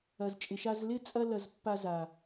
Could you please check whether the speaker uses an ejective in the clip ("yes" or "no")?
yes